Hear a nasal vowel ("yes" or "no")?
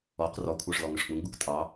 yes